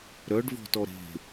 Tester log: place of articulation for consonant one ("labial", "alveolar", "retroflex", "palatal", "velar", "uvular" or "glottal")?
alveolar